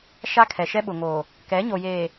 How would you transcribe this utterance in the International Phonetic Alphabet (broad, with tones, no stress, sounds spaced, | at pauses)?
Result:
ʃ a˦ kʰ ɛ˨ ʃ ɛ˦ ɓ ʊ˨ ŋ oː˨ | k ɛ˨˦ ɲ o˨ j eː˨